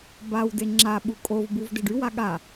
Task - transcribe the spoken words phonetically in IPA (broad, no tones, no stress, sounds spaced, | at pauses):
b a w d e ŋ͡ǁ a ɓ u kʼ o v b u v d e ɖ y w a ɠ a